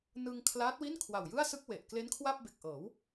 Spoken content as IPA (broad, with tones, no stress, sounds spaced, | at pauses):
n ɯ˧ ŋ kʰ l aː˦˥ t̚ w i˥˩ n kʰ w a˨˩ w j ɯ˥˩ a̯ s ɯ˥˩ k̚ w e˨˩ ʔ k l e˦˥ n kʰ w a˥˩ p̚ b e˨˩ k̚ ʔ ɤː˩˦ w